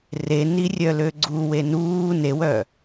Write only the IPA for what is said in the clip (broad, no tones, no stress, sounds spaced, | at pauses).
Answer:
r e n i rʲ œ l ø ɡ͡ǀ u w e n uː n e w œ